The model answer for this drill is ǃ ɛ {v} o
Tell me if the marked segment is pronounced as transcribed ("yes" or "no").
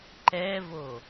yes